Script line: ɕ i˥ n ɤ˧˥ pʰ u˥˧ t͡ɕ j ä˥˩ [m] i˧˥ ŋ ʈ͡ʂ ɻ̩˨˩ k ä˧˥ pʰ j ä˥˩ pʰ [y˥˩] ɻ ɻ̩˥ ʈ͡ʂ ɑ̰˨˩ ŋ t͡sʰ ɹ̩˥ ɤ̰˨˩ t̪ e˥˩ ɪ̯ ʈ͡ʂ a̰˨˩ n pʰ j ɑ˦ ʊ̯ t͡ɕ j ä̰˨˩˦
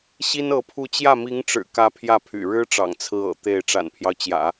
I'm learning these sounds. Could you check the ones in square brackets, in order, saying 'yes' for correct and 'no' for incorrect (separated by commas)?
yes, no